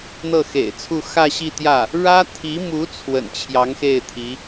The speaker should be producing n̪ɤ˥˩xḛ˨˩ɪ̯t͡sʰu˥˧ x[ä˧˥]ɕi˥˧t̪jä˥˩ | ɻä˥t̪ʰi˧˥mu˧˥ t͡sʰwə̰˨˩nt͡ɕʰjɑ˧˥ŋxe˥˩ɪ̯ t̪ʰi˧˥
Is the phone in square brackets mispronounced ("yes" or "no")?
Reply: yes